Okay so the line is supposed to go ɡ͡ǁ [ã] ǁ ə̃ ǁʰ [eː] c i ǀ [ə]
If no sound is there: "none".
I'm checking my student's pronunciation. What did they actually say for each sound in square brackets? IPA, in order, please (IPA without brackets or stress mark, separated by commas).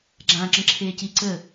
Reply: ã, eː, ə